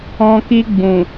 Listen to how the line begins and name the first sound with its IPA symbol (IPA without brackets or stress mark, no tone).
ɔ̃